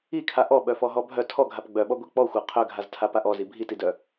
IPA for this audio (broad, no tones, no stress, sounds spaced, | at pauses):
i kʰ a ʔ ɔ ɓ œ f ɔ ɦ ɔ bʱ œ tʰ ɔ ɡʱ a p ɡ͡b œ ɓ ɔ ɡʷ i k͡p ɔ xʷ a qʰ œ ɡʱ a z tʰ a p a ʔ ɔ z i bʱ i t i d œ